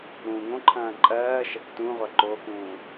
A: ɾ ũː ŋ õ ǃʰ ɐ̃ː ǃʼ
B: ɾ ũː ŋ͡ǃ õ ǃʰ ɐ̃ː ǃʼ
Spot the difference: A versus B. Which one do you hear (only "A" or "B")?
A